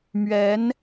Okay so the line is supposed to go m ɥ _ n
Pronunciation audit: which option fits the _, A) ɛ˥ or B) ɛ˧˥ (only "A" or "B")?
B